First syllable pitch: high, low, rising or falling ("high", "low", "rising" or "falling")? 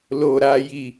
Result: low